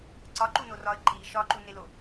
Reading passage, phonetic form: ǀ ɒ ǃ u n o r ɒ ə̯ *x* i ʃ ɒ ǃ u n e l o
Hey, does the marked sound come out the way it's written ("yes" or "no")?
no